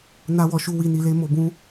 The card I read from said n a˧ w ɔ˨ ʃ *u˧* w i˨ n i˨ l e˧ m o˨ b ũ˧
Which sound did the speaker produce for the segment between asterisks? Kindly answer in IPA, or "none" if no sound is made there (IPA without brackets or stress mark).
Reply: u˧